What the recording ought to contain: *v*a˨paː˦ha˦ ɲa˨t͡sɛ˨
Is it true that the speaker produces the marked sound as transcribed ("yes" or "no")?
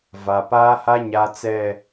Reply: yes